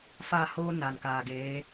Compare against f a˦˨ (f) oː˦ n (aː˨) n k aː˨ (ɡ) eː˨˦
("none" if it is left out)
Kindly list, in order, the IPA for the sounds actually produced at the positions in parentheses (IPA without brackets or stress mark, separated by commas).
h, aː˨, ɡ